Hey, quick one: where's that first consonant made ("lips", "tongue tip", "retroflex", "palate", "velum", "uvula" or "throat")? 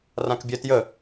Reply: tongue tip